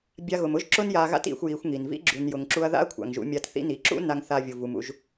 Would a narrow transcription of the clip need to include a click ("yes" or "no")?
yes